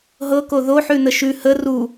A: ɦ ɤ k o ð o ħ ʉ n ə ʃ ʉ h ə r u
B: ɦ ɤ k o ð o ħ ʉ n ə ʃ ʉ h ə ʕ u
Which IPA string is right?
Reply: A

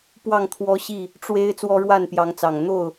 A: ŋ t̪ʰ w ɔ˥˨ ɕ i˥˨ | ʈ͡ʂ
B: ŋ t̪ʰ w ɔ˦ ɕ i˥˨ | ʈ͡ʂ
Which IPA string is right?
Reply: B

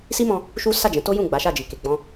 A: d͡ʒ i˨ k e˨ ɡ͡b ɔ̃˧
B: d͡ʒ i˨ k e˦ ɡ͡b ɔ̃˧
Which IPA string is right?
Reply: A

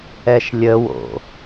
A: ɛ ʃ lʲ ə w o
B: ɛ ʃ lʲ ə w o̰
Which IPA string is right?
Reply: B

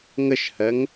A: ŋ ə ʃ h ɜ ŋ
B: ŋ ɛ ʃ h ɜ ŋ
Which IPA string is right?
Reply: A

